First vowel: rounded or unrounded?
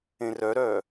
unrounded